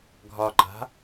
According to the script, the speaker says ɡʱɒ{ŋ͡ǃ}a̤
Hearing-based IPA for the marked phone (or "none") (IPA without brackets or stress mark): ǃ